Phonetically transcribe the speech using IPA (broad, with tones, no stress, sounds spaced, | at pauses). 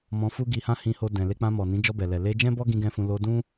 m ɔ̃˧ f u˦ ɡ i˧ h ã˦ h ĩ˧ h o˧ d ɛ̃˨ l e˧ k͡p ã˧ m ɔ˨ n ĩ˨˦ d͡ʒ ɔ˧ b ɛ˨ l ɛ˨ l e˧ d͡ʒ ɛ̃˦ b ɔ˦ ɡ ĩ˦ ɡ ɛ̃˦ f ũ˧ l o˧ d ũ˦